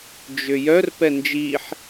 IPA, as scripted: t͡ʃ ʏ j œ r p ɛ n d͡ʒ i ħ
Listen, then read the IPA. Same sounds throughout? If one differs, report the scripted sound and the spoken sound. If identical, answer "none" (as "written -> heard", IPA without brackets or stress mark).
t͡ʃ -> d͡ʒ